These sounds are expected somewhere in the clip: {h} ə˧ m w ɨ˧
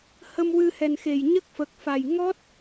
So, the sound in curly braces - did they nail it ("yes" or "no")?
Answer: yes